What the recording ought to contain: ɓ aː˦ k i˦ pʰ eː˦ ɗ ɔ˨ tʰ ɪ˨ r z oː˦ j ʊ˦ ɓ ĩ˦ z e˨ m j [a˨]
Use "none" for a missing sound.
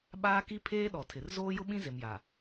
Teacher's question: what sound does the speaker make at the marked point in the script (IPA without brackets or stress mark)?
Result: a˨